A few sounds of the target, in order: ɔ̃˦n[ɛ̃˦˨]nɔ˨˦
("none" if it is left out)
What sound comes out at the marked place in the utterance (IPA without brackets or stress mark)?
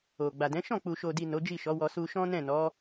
ɛ̃˦˨